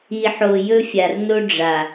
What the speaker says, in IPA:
i˨ ħ o˨ j ɵ˦ fʲ a˨ r n o˦ ɖ͡ʐ a˨

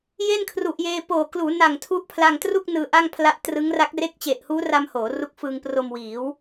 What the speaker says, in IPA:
j e˥˩ n kʰ r u˨˩ ʔ j eː˧ p oː˨˩ k l uː˩˦ n a˨˩ ŋ tʰ u˦˥ ʔ pʰ l a˧ ŋ t r u˥˩ k̚ n ɯː˧ ʔ a˥˩ ŋ pʰ l a˦˥ ʔ t r ɯ˦˥ ŋ r a˦˥ k̚ r e˥˩ k̚ t͡ɕ e˨˩ ʔ h uː˦˥ r a˧ m h oː˩˦ r u˦˥ k̚ f ɯː˧ ŋ p r o˧ m w iː˩˦ w

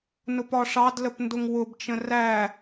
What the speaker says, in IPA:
n ʊ p ɒ ʂ ɑ d l ə p n d ʊ ŋ w ʊ b t͡ʃ ə̃ r æ

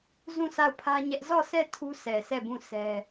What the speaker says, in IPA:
z ũ˦˨ s a˦˨ ʊ̯ pʰ ä˦ ɲ ɛ˦ ʔ z ɔ˦˨ s ɛ˦˨ tʰ u˦ s ɛ˨ s ɛ˦˨ b ũ˦˨ s ɛ˦

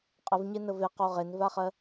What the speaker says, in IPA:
qʼ ə v ɲ e n ə v e q o ʁ e n v a χ ɜ

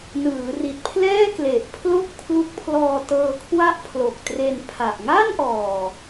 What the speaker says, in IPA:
n ɯː˩˦ r i˨˩ t̚ pʰ l ɛː˥˩ k l e˨˩ ʔ pʰ l o˥˩ k̚ pʰ l u˦˥ k̚ pʰ l ɔː˧ t ɤː˧ kʰ w a˥˩ ʔ pʰ l o˨˩ k̚ t r e˧ n pʰ a˨˩ ʔ ŋ a˥˩ n ʔ ɔː˨˩

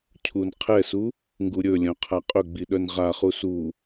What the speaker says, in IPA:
cʰ u n qʰ ɛ s u | ŋ ɡ u ɾʲ ɵ lʲ œ̃ qʰ a qʼ ɵ ɡ͡b i ɗ œ n ʁ a χ u s u

